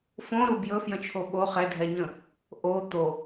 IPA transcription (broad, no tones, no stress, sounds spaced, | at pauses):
f õ ɾ u b j ɵ f j ə̃ t͡ʃʰ o ɓ o χ ɛ dʱ ɛ ɲ ə̃ | ʔ o t̪ o